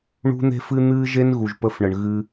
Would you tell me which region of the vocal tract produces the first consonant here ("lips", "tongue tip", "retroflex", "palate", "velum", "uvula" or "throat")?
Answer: retroflex